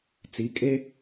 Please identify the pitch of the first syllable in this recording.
rising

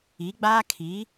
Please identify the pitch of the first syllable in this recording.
rising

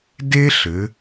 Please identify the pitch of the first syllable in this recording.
high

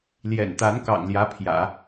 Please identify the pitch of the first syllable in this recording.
low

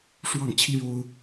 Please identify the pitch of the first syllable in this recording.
falling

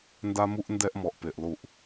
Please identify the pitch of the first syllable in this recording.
high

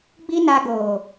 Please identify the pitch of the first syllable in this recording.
high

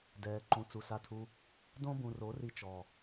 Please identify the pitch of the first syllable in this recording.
low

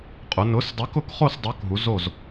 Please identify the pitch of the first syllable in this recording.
rising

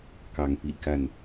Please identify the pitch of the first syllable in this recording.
rising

